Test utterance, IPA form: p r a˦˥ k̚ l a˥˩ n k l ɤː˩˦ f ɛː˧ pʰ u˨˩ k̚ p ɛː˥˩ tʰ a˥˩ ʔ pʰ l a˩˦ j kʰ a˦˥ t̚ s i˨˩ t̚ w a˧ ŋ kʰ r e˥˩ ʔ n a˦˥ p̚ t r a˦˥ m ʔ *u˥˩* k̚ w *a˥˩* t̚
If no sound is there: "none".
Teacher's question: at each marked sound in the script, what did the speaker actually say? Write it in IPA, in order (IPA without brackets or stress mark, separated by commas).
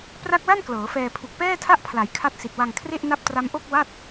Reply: o˥˩, a˥˩